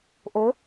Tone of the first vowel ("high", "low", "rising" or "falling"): rising